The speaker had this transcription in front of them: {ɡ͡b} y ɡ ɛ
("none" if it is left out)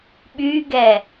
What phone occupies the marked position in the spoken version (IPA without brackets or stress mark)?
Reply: ɓ